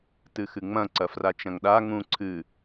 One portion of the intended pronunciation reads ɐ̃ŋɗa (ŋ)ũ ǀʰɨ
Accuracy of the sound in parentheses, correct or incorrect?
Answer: correct